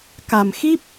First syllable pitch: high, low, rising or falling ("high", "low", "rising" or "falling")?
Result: low